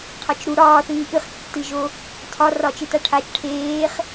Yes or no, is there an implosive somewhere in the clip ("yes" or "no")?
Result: no